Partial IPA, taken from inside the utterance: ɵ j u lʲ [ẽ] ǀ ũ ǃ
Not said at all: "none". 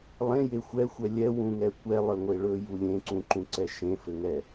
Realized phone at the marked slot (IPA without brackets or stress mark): ẽ